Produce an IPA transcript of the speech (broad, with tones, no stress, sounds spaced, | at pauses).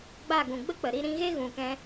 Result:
ɡ͡b a˦˨ ɡ ũ˨ ɡ͡b ə˦ k͡p ə˨ ɾ i˦ ɾ ĩ˧ ɣ e˦ ɣ ũ˨ k ɛ̃˧